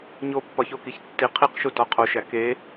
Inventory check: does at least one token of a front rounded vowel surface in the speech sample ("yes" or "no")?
no